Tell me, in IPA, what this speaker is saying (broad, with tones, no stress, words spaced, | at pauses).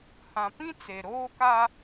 hã˨pĩ˦ t͡se˨ɾoː˦ka˦